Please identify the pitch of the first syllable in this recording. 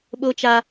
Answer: high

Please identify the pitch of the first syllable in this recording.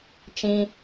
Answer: high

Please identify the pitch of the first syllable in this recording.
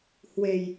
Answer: low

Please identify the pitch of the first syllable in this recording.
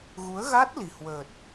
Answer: rising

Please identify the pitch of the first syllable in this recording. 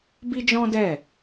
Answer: high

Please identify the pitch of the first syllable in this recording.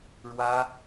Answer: high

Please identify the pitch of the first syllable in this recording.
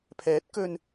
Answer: rising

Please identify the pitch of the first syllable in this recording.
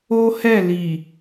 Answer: high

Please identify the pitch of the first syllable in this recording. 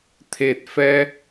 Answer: low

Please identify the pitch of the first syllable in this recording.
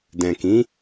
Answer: low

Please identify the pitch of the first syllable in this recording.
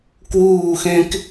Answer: falling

